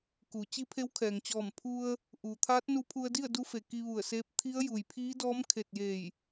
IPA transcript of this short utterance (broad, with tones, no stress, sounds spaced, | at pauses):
k u˩˧ t͡ɕ i˧˥ pʰ e˧˥ w kʰ ɛː˩ ŋ t͡ɕ ɔː˧˩ m pʰ u˧ ə̯ | ʔ uː˩ t̪ʰ aː˧˥ t̚ n u˧ pʰ u˧ ə̯ d i˥˨ ə̯ d u˧˥ f e˩ k i˧ ʋ u˧˩ ə̯ s eː˧˥ p̚ t̪ʰ i˧˥ ə̯ j u˩ j pʰ iː˧˥ d ɔː˧˥ m kʰ e˧˩ t̚ j e˧˩ j